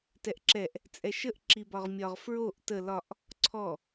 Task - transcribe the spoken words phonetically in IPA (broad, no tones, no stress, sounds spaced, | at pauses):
t ɛ ʔ ǁ ɛ ʔ | t͡sʼ ɛ ʃ ə ʔ ǁ i b ɒ ʁ mʲ ɒ ʁ f ɹ o ʔ t ə l ɒ ʔ | ǀʰ ɔ